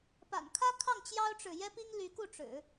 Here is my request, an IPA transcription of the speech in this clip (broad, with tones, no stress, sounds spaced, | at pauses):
p a̰˨˩ n kʰ ä˥ kʰ ɑ˥˩ ŋ t͡ɕ j ɑ˥ ʊ̯ ʈ͡ʂ ɻ̩˨ j ɛ˥ p i˥ ŋ l y˧˥ k u˥˩ ʈ͡ʂ ɻ̩˨˩˦